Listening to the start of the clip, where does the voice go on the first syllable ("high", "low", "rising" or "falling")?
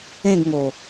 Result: falling